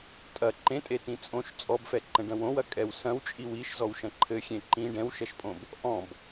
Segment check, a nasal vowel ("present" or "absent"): present